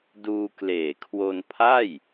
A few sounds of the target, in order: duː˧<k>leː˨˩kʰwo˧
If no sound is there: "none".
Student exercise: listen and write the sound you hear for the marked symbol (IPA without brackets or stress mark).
k